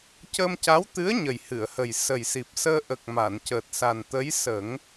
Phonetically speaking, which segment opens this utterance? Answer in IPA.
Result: c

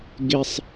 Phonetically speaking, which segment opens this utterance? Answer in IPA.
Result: ɡ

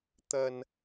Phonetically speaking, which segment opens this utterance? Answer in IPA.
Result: t̪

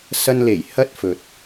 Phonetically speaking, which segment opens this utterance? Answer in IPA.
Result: s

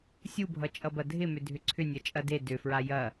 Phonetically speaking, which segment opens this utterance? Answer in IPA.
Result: sʲ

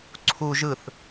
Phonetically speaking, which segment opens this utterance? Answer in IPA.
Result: ǀʰ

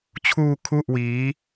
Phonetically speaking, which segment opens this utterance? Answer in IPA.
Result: t͡ɕʰ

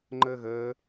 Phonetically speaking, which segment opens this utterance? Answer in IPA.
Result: ŋ͡ǃ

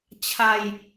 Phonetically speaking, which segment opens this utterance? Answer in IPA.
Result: t͡ɕʰ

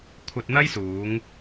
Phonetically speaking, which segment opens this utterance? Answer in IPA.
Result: kʷʰ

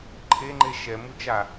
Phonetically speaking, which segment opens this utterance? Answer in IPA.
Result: ǃʰ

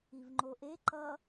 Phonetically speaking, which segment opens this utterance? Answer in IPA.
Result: i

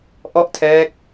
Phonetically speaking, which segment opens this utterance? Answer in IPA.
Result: ʔ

